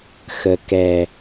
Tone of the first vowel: low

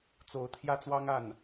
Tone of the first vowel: rising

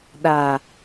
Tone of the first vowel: low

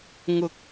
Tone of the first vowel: rising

